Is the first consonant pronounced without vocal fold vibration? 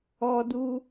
no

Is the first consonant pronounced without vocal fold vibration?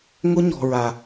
no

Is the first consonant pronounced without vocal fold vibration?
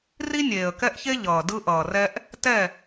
no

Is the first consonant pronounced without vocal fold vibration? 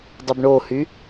no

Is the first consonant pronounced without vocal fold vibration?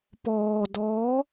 yes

